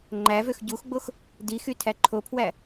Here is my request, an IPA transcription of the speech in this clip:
ŋ͡ǃævøx ɟuxɡ͡box | dixy tʰæǃʰopʰwæ

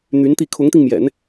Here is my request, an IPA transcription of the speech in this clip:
n̪y˧˥nt̪i˥˩ kʰʊ˧˥ŋt̪i˧ŋmjɛ̰˨˩˦n

